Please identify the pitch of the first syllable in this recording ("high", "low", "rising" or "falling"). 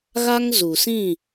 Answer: high